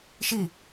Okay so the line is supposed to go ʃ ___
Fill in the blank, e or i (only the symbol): i